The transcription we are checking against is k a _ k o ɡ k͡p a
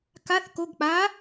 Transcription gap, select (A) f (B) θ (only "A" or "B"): B